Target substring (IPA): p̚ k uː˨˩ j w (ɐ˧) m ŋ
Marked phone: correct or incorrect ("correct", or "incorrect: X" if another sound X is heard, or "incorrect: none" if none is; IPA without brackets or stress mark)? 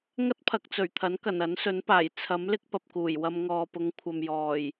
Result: correct